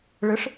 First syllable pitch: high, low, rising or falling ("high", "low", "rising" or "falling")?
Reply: rising